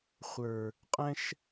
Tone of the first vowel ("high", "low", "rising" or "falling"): low